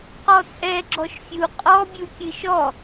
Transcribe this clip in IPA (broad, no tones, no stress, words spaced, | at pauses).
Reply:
qɔt͡sʼɛ ɡ͡ǁɔʃfʲu qʼɔ bʲukʲɨʃɔ